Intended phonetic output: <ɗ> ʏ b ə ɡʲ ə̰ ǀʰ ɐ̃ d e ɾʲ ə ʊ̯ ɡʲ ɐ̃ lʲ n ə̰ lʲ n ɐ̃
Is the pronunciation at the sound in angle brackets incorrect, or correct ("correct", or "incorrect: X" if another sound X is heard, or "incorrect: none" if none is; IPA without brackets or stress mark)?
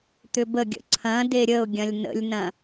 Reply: incorrect: t̪